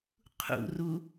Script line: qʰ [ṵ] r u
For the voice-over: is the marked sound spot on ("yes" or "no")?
yes